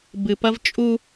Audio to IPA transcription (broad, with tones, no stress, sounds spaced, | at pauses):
b ɨ˨ p ɐ˦ v t͡ʃʼ u˦